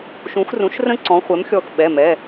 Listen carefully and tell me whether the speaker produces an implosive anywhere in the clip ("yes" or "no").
yes